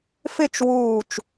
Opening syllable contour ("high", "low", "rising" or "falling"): falling